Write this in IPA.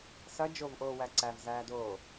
sɐ d͡ʒovʔoːwæ ǀævzæːdoː

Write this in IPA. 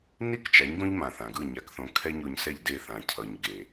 ni˥kt͡ʃa˩˥ɲ ɡõ˥ʎmã˩ θã˩ɡɯ˥˩ ɲa˩˥kθõ˩˥ kʰɛ˥ɲo˧ɲsɛ˥˩ʎde˥˩ θã˩cʰʌ˩ɲ ɡe˩

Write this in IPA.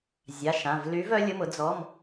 zʲa˩˧˩ʃã˩˧˩v ly˨˦vœ˨˦ lʲʊ˩˧˩mʊ˨˦ d͡zɔ˩˧˩m

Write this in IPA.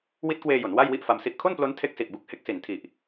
wi˦˥t̚kweː˧jo˩˦n wa˥˩jwi˥˩ʔ fa˧msi˥˩ʔ kʰo˥˩nplo˦˥n tʰe˦˥k̚si˨˩ʔbu˦˥k̚ he˦˥k̚si˨˩n tʰi˨˩ʔ

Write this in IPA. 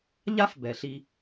ʎa˦fbɛ˨ɬi˧

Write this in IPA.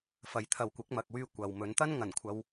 fɐ˨jt̪ʰɐ˨w kʷɪ˨˥k̚mɐ˨k̚wyː˧ kʷɐ˨wmɵ˨˥n t̪ɐ˥nŋɐ˨˩nkʷʰɐ˨˧w

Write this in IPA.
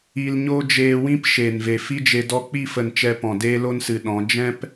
i˧lɲo˦ d͡ʒeː˧wĩ˦p ʃeː˨nve˨fi˦d͡ʒe˧ dɔ˧k͡pi˦˨fə˨n t͡ʃɛ˧pɔ̃˨ deː˦lo˦nsɨ˨ɗɔ̃˨˦ d͡ʒɛ̃˦p

